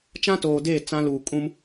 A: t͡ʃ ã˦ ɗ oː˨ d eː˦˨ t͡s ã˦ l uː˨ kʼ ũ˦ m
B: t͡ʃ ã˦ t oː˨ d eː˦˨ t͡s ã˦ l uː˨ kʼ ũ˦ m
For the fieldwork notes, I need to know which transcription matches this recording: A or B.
B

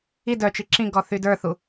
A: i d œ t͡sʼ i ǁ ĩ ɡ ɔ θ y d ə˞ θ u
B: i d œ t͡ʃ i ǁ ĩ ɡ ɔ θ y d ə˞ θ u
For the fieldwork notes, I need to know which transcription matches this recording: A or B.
B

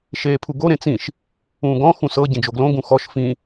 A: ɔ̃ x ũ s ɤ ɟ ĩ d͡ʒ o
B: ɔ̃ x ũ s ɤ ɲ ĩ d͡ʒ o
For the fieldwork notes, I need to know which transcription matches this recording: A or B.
A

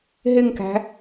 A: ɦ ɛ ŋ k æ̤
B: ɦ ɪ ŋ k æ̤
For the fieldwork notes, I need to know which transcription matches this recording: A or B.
B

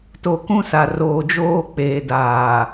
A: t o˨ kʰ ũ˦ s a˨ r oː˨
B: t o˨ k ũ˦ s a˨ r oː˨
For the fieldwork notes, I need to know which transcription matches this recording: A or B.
B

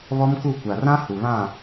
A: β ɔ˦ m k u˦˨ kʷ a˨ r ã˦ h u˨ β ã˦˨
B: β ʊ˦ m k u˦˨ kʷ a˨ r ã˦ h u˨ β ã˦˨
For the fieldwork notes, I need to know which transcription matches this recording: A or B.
A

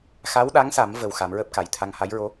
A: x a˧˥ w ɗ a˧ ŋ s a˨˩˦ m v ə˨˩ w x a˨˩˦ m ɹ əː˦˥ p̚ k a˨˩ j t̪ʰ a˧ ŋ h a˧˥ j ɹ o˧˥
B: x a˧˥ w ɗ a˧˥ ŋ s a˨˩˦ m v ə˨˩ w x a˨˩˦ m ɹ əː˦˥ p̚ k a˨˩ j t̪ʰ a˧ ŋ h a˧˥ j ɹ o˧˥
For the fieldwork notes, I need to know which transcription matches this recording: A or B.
B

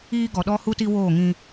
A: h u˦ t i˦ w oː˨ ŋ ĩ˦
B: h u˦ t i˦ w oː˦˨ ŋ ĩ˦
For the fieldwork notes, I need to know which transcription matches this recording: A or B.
B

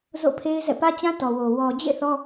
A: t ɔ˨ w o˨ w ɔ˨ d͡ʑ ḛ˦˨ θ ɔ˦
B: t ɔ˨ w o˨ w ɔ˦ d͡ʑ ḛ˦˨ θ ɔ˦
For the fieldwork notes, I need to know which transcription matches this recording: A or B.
A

